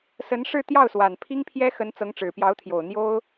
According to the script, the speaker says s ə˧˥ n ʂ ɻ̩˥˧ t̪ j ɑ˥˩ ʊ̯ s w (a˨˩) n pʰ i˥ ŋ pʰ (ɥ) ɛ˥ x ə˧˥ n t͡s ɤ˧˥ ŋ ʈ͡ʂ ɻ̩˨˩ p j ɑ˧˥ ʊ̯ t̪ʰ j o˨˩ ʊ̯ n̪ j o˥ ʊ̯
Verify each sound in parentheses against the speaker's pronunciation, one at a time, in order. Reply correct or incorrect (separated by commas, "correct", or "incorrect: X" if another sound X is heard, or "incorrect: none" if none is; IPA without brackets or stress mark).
correct, incorrect: j